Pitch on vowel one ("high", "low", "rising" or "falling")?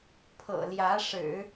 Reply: low